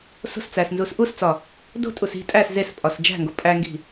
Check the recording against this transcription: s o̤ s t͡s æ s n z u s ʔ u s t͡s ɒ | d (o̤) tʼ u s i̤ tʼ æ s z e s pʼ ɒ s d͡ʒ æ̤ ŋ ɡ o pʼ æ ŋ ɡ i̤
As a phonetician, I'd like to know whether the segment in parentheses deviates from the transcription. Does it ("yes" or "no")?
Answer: no